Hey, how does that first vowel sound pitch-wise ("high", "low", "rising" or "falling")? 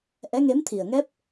rising